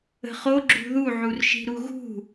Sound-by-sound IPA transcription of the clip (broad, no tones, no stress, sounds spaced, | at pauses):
ə̤ χ o ɡ͡ǁ ṳ ð u ʕ u r ʃ i̤ ɾ u ɣ ṳ